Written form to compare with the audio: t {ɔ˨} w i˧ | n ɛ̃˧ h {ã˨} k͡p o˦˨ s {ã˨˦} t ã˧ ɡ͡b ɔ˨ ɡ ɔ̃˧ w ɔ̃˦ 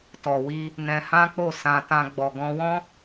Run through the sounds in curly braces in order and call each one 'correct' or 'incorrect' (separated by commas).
correct, incorrect, incorrect